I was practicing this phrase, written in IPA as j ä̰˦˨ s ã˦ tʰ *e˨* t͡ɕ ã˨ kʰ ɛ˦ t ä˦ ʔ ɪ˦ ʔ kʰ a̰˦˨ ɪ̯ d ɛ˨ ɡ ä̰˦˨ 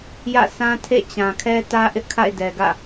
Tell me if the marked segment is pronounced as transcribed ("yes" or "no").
no